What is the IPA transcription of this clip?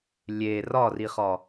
lʲ e r ɒ r i χ ɒ

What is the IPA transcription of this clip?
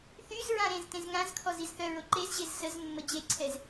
θ y z ɹ ã ɾ ẽ z t ẽ z ŋ ã z kʰ ɔ z i z θ œ ɹ o ǃ e z ʑ e z s ə z mː ə d͡ʑ e ǀʰ ɛ z

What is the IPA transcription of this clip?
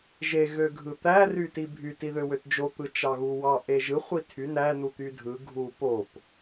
ʒ e ɣ ø ɡʱ ɯ t̪ æ r y t i bʱ y t i ð ø w ø t d͡ʒ o t̪ ɯ t͡ʃ ɑ ɣ u w ɑ ʔ e ʒ ɯ χʷ i tʰ y n æ n u t̪ y dʱ ɯ ɡʱ u p o p

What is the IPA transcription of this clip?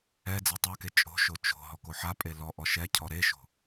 ɛ d͡z e tˤ a k e t͡ʃʼ o̤ ʃ o t͡ʃ o̤ ɦ ɔ k o ħ a pʼ e l ɔ ʔ ɔ ʃ ɛ cʰ ɔ ɾ e ʃ o̤

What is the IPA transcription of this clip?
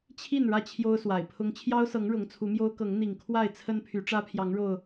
t͡ɕʰ i˥˨ n ɻ ä˥˨ t͡ɕʰ j o˦ ʊ̯ s w a˨˩ ɪ̯ pʰ ʊ˦ ŋ t͡ɕʰ j ɑ˦ ʊ̯ s ɤ˨˦ ŋ ɻ ʊ˨˦ ŋ t͡sʰ u˨˦ m j o˦ ʊ̯ k ɤ˨˦ ŋ n̪ i˨˩ ŋ kʰ w a˥˨ ɪ̯ t͡sʰ ə˦ n pʰ y˨˦ ʈ͡ʂ ä˦ pʰ j ɑ˨˦ ŋ ɻ o˨˩ ʊ̯

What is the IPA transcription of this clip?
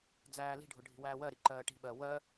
d͡z æː l i̤ ɖʱ ʊ ɖʱ i̤ w æː w ɜ ɾ i ǃ ɜː ʈ i̤ ɓ ɜ w ɜ

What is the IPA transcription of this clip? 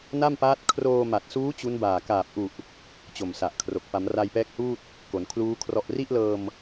n a˥˩ m p aː˦˥ t̚ kʰ r oː˧ m a˨˩ t̚ s uː˦˥ t͡ɕ u˦˥ n b aː˨˩ k aː˨˩ p̚ ʔ u˨˩ ʔ | t͡ɕ o˨˩ m s a˨˩ ʔ kʰ r o˨˩ k̚ p a˩˦ m r a˧ j p ɛː˦˥ k̚ h uː˥˩ t̚ | k o˩˦ n kʰ l uː˦˥ kʰ r ɔ˨˩ ʔ r i˥˩ ʔ l ɤː˧ m

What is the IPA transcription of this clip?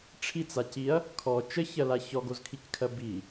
ʈ͡ʂʰ i t͡s a c i ɐ̯ | kʰ ɔ t͡ʃ ə ç ɜ l a ç ɔ ɡ o z kʰ i c kʰ ɜ b i

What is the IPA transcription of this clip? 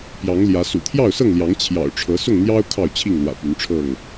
p j ɑ˨˦ ŋ l j ä˨˦ s ṵ˨˩ t̪ʰ j ɑ˥˨ ʊ̯ s ɤ˥˨ ŋ l j ɑ˨˦ ŋ t͡ɕʰ j ɑ̰˨˩ ʊ̯ ʈ͡ʂʰ ɤ˨˦ s ʊ˥˨ ŋ n̪ j ɑ˦ ʊ̯ kʰ ɑ˥˨ ʊ̯ t͡ɕʰ i˥˨ ŋ l w ä̰˨˩ p y˨˦ n ʈ͡ʂʰ ɤ˥˨ ŋ

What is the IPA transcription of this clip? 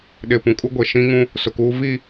ɗ ɪ˨ p ũ˨ kʼ u˦ ɡʷ e˨ ʃ ĩ˦ ŋ ũ˦ | s ʊ˨ k uː˦ v i˦˨

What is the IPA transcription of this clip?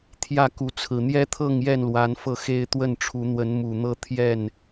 t̪ʰ j ä˥˨ k u˨˦ t͡sʰ ɹ̩˨˩ n̪ j ɛ˦ t̪ʰ ɤ˥˨ ŋ j ɛ˥˨ n l w a˨˦ n f ɤ˥˨ x e˦ ɪ̯ t̪ w ə˥˨ n ʈ͡ʂʰ u˨˦ n̪ w ə˨˦ n m u˨˩ n̪ ɤ˦ t̪ʰ j ɛ˥˨ n

